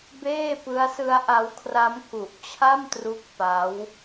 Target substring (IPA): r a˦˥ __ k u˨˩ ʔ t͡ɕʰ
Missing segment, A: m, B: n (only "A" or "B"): A